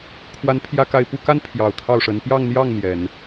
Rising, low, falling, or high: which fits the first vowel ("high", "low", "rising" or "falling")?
rising